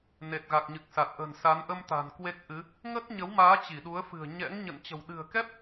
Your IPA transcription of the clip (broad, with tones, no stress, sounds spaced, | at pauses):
n e˨˩ t̚ ɣ a˨˩ k̚ ɲ ɨ˨˩ k̚ s a˨˩ t̚ ʔ ə̤˨˩ n s a˨˦ n ʔ ə˧ m t̪ a̤˨˩ n k w e˦˥ k̚ ʔ ɨ˨˦ | ŋ ə˦˥ t̚ ɲ ə˨˦ w m aː˨˦ t͡ɕ i˧˩ ɗ u˨˦ ə̯ f ɨ̤˨˩ ə̯ ɲ ɛ̰˧˥ ŋ ɲ ə̰˧˨ n t͡ɕ ə̤˨˩ w ɗ ɨ̤˨˩ ə̯ k ɛ˦˥ p̚